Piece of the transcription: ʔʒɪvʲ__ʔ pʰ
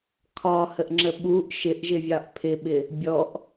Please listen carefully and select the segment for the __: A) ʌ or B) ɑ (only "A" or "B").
B